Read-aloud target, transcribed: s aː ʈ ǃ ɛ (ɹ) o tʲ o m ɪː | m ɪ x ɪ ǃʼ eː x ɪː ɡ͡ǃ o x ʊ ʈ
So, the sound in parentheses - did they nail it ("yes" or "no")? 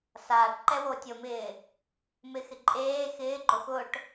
no